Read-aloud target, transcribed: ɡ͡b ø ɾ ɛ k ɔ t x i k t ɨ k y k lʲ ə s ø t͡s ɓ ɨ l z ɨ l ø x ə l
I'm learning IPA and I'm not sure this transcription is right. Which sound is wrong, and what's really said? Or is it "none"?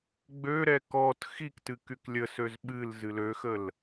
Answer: t͡s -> z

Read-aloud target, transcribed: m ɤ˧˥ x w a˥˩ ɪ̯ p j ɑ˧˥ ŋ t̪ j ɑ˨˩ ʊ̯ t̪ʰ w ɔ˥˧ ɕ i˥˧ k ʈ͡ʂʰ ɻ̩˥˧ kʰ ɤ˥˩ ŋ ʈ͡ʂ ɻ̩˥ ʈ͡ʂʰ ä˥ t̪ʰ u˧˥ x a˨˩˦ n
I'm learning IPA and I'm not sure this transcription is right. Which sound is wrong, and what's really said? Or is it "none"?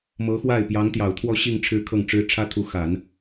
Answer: k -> ŋ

